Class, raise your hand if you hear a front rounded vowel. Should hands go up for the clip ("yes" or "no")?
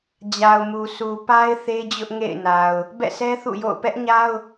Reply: no